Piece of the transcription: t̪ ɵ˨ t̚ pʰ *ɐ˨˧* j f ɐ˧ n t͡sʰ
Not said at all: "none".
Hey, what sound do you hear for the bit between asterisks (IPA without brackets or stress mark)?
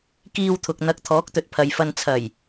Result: ɐ˨